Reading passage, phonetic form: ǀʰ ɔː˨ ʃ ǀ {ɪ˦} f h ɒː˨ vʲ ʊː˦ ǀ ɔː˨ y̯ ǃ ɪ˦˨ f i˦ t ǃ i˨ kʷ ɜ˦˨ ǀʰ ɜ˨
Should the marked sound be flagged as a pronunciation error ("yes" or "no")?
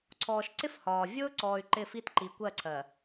no